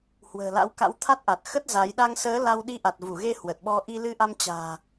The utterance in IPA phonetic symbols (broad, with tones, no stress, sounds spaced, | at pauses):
h w ə̤ː˨˩ l a̰˧˥ w k a̰˧˥ w t̪ʰ a˦˥ t̚ ʔ a˨˩ t̚ x ə˦˥ t̚ z a˨˦ j ɗ a˧ ŋ s əː˨˦ l a˧ w ɗ i˧ ʔ a˨˩ t̚ v u˧˩ ɣ e˧ h w ə˨˩ t̚ ɓ ɔ˧ ʔ i˧ l ɨ˧ ʔ a˧ m t͡ɕ a̤ː˨˩